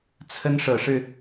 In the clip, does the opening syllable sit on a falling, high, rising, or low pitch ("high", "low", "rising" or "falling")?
high